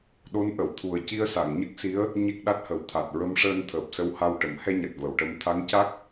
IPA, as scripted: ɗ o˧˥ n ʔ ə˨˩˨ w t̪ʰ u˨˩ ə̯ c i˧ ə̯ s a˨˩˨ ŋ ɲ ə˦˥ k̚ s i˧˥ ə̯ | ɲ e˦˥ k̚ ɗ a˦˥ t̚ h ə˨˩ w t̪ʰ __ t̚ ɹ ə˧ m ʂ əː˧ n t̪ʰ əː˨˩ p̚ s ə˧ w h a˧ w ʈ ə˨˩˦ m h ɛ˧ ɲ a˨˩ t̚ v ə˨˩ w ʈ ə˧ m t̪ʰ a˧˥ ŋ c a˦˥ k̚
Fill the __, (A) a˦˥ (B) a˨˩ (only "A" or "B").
B